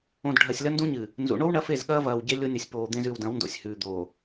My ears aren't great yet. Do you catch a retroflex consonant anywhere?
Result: yes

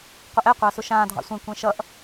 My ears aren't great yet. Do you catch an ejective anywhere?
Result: no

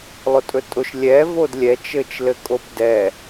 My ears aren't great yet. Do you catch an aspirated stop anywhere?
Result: no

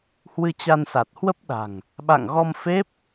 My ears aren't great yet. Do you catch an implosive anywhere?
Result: yes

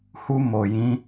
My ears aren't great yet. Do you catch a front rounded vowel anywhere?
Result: no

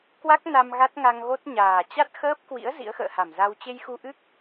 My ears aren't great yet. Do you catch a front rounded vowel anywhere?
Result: no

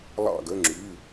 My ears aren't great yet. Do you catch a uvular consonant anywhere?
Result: no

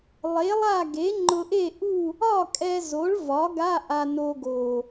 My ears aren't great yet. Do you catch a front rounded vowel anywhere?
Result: no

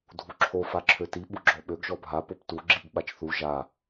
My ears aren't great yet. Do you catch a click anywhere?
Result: yes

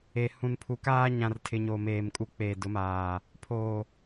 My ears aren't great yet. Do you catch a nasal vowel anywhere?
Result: yes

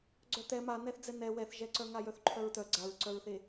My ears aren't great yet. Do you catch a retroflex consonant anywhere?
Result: no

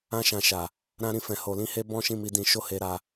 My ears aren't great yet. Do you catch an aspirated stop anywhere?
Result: no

